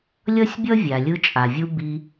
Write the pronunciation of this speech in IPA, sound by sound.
lʲʌ˥sʲbʲʌ˥ vʲa˩lʲɯ˧t͡ʃʼa˩vʲu˧ bi˧

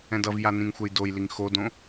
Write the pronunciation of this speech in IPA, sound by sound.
ɛ̃dʌvja nĩŋxʷɛjdojliŋ xodõ

